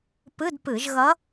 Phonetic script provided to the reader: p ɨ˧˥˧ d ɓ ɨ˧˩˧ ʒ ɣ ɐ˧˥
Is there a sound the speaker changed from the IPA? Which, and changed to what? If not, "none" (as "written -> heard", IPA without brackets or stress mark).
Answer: ɓ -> p